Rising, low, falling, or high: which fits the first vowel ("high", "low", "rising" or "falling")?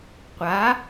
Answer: rising